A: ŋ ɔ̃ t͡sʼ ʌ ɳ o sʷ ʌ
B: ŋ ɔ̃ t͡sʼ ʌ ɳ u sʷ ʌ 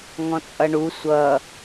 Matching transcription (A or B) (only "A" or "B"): B